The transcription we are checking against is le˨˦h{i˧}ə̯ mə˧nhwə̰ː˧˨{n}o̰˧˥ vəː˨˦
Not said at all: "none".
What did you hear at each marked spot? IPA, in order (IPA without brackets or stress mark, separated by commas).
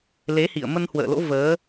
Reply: ḭ˧˨, l